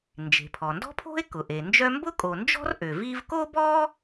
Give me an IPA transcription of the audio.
nd͡ʒe̤˩pʰɔ˩ndɔ̤˥pʰo̤˥e̯ kʊ˩ʔe˩nd͡ʒœ˥ mbʊ˥kʼo˩nd͡ʒɔ̤˥r ʔø˩vi˥v ko˥bɔ˥

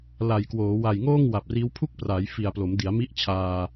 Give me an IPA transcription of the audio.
la˨˩jkwoː˩˦ wa˨˩jŋoː˥˩ŋ wa˨˩p̚riː˦˥w pʰu˥˩k̚praː˩˦j fi˨˩a̯ plo˩˦mdi˩˦a̯mi˦˥ʔ t͡ɕʰaː˧

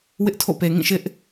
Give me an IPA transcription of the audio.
wɪ˦ʔtʰo̰˦˨pe˨ ŋĩ˦˨ʃɪ˦ʔ

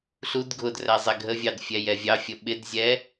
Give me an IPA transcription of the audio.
ɬud ɡʱʊdræ zˤɛɡʱəvʲɑd fʲɛjɛvʲɑfʲə ɓɪdzʲɛ

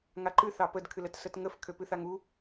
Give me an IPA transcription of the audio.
ŋaǃɨ θɑpəd kʰɨlət sətŋəf kʰøpɨθaŋu

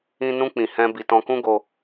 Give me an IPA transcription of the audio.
ĩ˧ nũ˧k͡pĩ˨ hɛ̃˧ bi˨tɔ̃˧kũ˦ ɡo˧

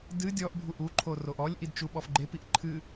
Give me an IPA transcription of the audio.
dɨ dʲɔʔ bʱuʔuǃʰo roʔɔlʲʔid t͡ʃuɓɔfɡ͡ǃepiʔ ǃʰɨ

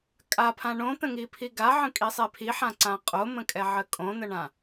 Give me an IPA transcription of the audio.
kʼapʰã ɳõt̪ə̃ŋipʰi ɡaʕə̃kʼisˤe pʰiħãǀã qʼomə̃kʼɛʕə kʼõn̪əɳã

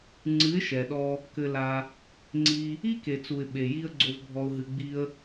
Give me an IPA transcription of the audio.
ŋ͡ǀɨ˨˦ɪ̯ʃɛ˨ɗɔ˧ | kɘ˧la˧ | ŋ͡ǀi˧ | i˦ke˨ t͡su˨ɪ̯ ɓe˨ji˧ə̯ ɡ͡ǀo˧vbʱɔ˧ʊ̯ɦɨ˧ ɡ͡bi˧ə̯

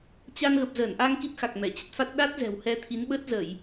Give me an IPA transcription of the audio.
t͡ɕa˧nɣə˨˩p̚ zəː˧˩nʔa˧ŋ ki˦˥t̚xa˨˩k̚ mɛ˧˩t͡ɕə˦˥t̚fa˦˥t̚ ɗa˦˥t̚ zɛ̤˨˩whɛ˧t̪ʰi˨˦n ɓə˦˥t̚zə˧˩˨j

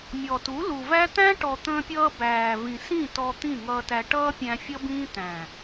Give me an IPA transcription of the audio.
mʲɔ˨tu˨˦lu˨væ˦ t̪æ̃˦ʈɔ˨t̪ə̃ː˧pʲʌː˧ bæː˨ vĩ˨sĩ˦˨ tɔ˧ t̪ĩ˦˨ŋʌː˧tæ˧ ʈʌː˦pʲæ̃˧ fʲʌ˦bĩː˦ t̪æ̃˨

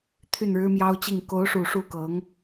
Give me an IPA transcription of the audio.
t̪ʰy˥˩nɻɻ̩˥mjɑ˥ʊ̯t͡ɕi˥˩ŋ ko˧˥ʊ̯ʂu˨˩ ʂu˥˩ kɤ˧˥ŋ

